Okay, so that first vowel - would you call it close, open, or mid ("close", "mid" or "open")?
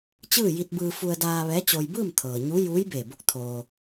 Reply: close